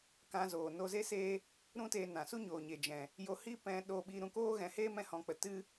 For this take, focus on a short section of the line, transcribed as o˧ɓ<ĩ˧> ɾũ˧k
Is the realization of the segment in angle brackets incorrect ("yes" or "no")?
yes